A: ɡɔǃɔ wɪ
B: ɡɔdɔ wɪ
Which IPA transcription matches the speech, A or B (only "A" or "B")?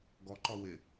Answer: A